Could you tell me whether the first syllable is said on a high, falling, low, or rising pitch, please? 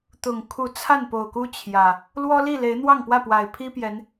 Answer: low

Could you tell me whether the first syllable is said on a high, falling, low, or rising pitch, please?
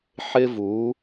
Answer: high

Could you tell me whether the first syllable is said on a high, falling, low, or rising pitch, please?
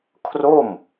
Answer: falling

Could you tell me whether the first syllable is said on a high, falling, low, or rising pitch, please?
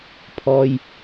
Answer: low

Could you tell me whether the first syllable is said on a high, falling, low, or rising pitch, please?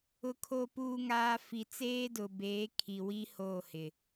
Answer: low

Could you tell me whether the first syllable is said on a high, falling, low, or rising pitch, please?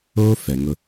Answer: high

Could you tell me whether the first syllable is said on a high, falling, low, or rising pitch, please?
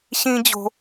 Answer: high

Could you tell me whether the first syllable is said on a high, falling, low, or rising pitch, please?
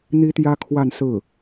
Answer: high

